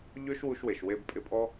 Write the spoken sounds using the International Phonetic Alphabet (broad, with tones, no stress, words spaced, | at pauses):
ʎø˦ʃwu˧ʃwe˨ʃ we˧bpʼɪ˧pʼɔ˦